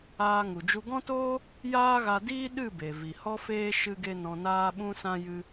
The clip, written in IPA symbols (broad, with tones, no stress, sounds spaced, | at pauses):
aː˧ ŋ u˨ d͡ʒ u˧ ɡ ɔ̃˦ t oː˦ | j aː˦ ɣ a˧ d iː˦ ɗ ɨ˦˨ b e˨ v i˨ h ɔ˦ f eː˦ ʃ ɨ˧ ɡ e˧ n ɔ̃˧ n aː˦ ɓ ũ˦ s ã˦ j ɨ˧